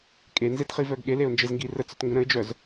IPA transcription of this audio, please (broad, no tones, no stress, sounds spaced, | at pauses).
kʼ e n z e t χ i v œ ɡ ɠ e l e ʊ̯ n d͡ʒ e z ŋ ɡ i r ə t͡s œ t ŋ ɡ ə̃ ɾ ə̃ ɪ̯ d͡ʒ œ z